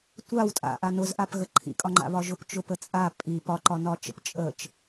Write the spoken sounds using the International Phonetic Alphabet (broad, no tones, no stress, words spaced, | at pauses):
tʷaw tʼa̰ʔa nʊzʔapɣə ǃʰḭkʼɒŋ͡ǃa̰βɒ ʒʊpt͡ʃʊpət͡sʼa pʼi pɒǃɒnɒt͡ʃə̰p t͡ʃʼət͡ʃ